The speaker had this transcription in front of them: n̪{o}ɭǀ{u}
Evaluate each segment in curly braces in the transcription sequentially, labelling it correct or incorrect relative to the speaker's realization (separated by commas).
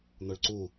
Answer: correct, correct